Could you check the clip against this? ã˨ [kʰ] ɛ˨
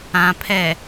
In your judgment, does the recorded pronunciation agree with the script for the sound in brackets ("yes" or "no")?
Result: no